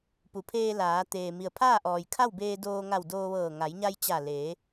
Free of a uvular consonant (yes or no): yes